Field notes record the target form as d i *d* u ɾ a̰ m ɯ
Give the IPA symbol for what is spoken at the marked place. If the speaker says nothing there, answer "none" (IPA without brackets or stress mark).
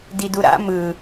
d